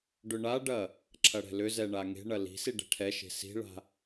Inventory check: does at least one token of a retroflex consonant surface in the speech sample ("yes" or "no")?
yes